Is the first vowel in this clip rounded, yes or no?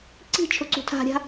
no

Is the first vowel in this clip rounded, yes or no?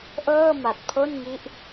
no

